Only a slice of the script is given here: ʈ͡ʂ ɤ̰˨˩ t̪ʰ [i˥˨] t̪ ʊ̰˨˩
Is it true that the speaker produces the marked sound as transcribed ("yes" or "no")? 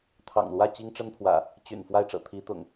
no